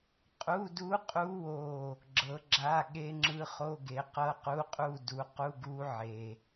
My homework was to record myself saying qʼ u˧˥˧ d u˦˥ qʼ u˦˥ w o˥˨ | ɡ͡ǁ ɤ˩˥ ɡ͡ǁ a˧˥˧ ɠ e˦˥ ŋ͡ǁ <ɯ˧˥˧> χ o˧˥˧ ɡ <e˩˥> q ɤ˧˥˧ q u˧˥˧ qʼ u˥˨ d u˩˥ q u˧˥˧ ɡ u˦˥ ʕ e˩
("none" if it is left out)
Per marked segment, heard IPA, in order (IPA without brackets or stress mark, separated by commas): ɯ˧˥˧, e˩˥